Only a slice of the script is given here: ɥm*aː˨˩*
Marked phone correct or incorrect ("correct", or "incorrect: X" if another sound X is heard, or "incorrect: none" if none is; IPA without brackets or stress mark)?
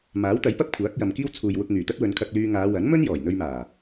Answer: correct